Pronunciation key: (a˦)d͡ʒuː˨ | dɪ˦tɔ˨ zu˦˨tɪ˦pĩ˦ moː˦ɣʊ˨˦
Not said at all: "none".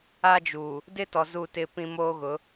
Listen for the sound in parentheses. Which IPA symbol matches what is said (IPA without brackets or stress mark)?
a˦